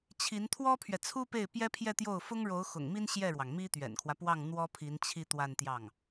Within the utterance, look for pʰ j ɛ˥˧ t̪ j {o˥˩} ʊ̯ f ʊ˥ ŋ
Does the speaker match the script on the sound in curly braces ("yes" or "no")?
yes